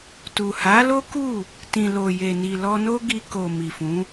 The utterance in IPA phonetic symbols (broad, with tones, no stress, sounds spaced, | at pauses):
t u˨ h a˨˦ l o˦ k u˦˨ | t ĩ˨ l o˨ j e˨ n i˨ l ɔ˧ n o˦ ɡ i˧ k o˨ m i˨ f ũ˨˦